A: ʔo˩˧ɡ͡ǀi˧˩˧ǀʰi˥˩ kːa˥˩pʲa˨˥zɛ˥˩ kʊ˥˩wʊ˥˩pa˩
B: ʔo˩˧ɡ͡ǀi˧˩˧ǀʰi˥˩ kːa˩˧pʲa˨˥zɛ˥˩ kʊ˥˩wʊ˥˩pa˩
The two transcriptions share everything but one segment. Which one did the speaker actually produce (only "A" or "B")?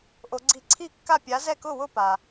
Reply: A